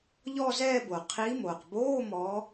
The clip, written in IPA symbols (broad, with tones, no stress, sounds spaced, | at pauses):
ʎ ɔː˥˧ z ɛː˥˧ b o˩ qʰ i˨˦ m oː˩ q b oː˧˥˧ m ɔ˨˦